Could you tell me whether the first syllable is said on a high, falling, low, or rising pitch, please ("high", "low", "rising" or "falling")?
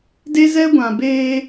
high